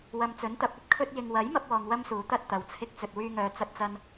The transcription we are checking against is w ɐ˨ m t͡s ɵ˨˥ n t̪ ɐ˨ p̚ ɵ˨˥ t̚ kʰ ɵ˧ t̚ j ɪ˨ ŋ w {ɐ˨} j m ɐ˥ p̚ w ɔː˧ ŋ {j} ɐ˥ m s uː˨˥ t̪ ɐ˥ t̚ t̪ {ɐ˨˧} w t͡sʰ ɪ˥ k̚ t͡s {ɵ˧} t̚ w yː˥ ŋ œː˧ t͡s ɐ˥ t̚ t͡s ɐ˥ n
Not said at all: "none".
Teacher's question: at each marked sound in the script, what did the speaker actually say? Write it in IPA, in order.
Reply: ɐ˨˥, w, ɐ˨˧, ɵ˧

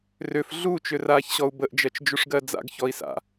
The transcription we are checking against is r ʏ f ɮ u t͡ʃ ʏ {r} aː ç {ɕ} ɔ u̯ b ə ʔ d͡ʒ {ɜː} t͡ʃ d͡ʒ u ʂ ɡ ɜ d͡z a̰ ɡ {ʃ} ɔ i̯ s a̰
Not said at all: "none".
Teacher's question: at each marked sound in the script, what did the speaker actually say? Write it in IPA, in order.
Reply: r, ɕ, ɜ, ç

